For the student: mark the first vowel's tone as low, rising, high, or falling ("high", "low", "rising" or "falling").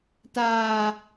low